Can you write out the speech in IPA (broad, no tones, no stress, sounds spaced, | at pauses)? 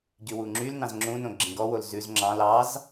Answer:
ɟ y w u ŋ͡ǁ y l n ɑ̃ z ŋ͡ǁ ũ n õ ɡ͡ǁ ĩ ɡ ɔ w o l z ʉ z ŋ͡ǁ ɑ̃ l ɑ z